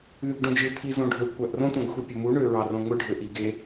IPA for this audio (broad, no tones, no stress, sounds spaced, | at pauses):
ð y ɡ ɖ õ d͡ʒ ɯ t̪ʰ i z õ ɖʱ ø kʷ æ ʔ r õ t̪ õ ɡ xʷ i pʲ o m u ɳ ø ɹ ɑ r õ ŋʷ ɯ ɖʱ ø ʔ i ɡ e